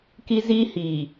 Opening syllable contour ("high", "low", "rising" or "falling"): high